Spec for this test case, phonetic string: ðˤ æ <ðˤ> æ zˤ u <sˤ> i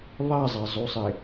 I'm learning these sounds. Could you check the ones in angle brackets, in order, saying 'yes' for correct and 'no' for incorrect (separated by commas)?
no, yes